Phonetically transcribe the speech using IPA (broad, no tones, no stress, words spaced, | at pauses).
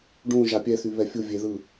ɖũ ʒapʲɛθy βɛfʲu vʲeðɯ